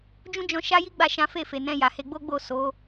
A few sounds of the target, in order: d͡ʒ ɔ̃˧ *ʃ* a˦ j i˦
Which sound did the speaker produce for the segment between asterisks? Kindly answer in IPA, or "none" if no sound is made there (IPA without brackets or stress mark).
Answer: ʃ